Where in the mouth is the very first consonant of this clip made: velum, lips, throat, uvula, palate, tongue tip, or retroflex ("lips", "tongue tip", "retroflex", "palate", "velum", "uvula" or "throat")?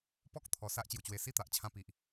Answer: lips